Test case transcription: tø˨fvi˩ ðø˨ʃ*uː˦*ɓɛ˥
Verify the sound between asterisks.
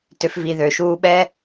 correct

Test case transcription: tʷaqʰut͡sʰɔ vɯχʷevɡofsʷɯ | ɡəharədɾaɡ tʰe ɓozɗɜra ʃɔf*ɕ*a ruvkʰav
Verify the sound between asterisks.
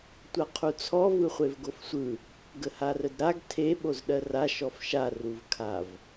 incorrect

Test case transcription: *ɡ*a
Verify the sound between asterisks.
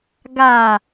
correct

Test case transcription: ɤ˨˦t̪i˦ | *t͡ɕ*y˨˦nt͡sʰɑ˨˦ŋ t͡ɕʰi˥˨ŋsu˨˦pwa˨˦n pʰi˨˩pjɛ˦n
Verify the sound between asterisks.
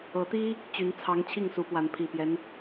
correct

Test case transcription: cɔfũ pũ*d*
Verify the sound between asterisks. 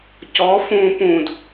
correct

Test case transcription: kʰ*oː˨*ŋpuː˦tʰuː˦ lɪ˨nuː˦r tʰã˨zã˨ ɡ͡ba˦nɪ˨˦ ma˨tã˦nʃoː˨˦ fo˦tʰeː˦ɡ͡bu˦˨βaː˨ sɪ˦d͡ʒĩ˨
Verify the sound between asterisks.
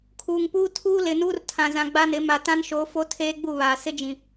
incorrect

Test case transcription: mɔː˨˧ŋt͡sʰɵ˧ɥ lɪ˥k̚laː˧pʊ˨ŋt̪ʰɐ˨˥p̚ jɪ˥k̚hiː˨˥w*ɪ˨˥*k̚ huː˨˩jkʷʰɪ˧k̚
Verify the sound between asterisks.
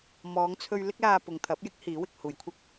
incorrect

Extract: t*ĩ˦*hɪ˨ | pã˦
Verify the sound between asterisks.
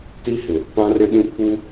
incorrect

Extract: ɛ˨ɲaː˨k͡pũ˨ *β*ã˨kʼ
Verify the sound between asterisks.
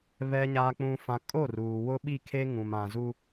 incorrect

